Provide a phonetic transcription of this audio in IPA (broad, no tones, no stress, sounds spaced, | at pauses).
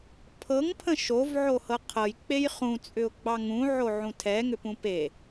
pʰ ɤ ŋ pʰ ə̃ ʃ o v ʕ o h ɤ qʰ ɤ j k͡p e j χ ũ t͡sʼ ʏ ʊ̯ ɡ͡b ɑ ŋ ũ ʕ o ʕ ũ tʰ ɛ ŋ ʏ p ũ p e